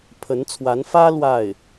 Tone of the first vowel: rising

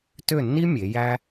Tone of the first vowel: falling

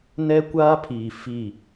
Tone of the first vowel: high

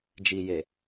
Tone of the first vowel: low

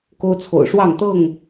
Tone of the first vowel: high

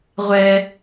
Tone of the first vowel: high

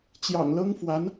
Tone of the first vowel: low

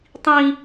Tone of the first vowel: high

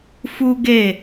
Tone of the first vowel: high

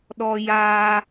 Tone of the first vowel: high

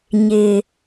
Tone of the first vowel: low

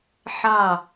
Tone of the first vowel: falling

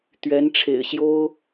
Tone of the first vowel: rising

